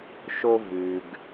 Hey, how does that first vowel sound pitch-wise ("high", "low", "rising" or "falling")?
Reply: high